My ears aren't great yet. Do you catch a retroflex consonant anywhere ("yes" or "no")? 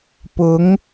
no